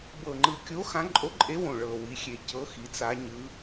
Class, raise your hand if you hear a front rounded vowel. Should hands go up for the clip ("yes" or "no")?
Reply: no